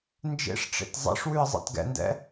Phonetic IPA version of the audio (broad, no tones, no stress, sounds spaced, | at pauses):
n d͡ʒ ḛ ʂ ʈ͡ʂ ḛ t zˤ ɛ̰ ʂ w ʉ ə̯ zˤ ɛ̰ t ɡ ɛ̰ n d ɛ̰